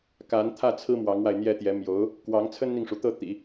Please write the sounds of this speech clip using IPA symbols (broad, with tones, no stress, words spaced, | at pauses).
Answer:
ka˧˥nt̪ʰä˥˩t͡sʰɹ̩˥ mwɑ˧˥ŋwa˧ɪ̯n̪jɛ˥t̪jɛ˧˥ mjo˧˥ʊ̯ | kwɑ˧˥ŋ t͡sʰə˥nn̪i˨ŋʂu˩t̪ɤ˥˩ t̪ḭ˨˩˦